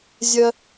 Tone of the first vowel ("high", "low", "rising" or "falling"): high